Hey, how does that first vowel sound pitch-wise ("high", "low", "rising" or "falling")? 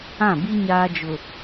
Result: falling